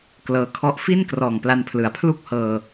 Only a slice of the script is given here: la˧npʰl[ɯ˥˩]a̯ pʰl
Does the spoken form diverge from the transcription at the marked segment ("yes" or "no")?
yes